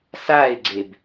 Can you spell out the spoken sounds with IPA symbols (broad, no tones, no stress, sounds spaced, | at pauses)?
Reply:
s a ɪ̯ ɡ͡ǀ e b